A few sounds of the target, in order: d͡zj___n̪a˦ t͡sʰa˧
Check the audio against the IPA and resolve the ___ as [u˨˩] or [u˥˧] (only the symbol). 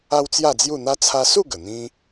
u˥˧